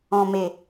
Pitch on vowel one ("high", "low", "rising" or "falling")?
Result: low